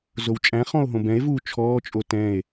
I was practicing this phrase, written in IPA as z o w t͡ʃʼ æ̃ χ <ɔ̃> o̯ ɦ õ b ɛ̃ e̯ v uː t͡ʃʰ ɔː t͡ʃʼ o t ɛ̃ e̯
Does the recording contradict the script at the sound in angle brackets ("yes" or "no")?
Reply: no